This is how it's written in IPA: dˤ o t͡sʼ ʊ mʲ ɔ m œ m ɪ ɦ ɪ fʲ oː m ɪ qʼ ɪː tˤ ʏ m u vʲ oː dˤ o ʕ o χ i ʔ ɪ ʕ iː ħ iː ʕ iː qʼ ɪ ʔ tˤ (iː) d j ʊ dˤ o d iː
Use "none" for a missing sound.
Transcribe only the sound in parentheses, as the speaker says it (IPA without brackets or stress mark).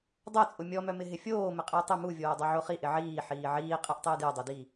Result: ɪː